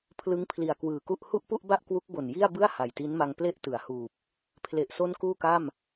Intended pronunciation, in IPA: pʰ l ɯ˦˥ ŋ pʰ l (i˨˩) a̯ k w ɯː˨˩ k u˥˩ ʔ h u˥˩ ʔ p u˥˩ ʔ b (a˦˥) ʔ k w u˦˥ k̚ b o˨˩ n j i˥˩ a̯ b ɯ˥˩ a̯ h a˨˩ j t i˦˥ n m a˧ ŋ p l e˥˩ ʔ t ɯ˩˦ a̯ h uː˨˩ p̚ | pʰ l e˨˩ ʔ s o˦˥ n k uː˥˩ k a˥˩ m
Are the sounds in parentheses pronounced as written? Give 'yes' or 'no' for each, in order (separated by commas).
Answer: yes, no